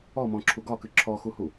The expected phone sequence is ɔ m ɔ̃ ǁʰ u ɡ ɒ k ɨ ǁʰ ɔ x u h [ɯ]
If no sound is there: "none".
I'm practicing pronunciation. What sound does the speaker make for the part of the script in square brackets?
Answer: u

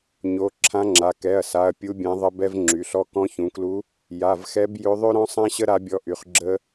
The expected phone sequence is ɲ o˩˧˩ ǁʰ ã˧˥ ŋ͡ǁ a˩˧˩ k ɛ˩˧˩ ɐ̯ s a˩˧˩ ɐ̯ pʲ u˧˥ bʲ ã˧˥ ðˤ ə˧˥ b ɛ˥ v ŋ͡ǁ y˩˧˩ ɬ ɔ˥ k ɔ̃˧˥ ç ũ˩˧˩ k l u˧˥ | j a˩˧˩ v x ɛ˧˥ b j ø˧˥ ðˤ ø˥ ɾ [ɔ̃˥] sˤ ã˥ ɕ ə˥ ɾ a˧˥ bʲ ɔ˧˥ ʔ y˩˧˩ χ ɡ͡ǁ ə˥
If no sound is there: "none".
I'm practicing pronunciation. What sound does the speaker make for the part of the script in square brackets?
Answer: ɔ̃˥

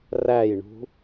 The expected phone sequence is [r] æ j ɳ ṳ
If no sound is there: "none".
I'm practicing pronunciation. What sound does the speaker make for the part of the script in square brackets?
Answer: r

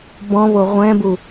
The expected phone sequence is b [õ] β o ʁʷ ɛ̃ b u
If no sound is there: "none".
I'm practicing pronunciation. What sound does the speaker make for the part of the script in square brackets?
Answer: ɔ̃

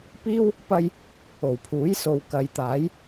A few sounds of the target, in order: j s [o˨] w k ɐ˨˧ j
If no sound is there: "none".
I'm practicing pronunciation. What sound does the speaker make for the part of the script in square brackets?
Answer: o˨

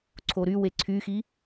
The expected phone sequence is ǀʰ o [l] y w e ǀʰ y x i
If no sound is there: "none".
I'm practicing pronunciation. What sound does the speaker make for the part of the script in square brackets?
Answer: ɾ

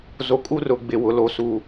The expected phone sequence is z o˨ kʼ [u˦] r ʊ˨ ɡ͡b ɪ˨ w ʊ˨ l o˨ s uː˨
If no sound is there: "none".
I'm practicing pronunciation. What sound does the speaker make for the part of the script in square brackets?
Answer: u˦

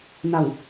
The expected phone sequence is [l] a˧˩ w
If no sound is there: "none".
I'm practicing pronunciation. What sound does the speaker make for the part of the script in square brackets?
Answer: n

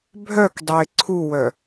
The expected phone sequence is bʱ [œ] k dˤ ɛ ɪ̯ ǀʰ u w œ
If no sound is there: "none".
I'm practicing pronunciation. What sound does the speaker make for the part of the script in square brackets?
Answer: œ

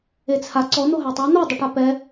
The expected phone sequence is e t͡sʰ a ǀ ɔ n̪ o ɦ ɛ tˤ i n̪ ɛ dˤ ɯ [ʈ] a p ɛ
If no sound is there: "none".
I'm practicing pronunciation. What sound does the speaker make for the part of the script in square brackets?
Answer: ʈ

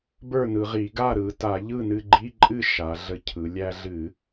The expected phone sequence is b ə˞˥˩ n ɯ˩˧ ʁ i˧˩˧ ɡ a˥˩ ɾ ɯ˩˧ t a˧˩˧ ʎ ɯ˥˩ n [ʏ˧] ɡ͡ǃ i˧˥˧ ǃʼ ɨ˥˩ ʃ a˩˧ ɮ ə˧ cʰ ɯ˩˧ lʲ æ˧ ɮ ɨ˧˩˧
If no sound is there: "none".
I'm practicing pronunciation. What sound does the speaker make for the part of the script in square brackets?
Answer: ɨ˧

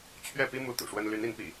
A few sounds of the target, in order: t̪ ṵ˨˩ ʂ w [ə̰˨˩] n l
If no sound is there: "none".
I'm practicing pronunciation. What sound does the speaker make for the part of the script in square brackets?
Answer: ə˦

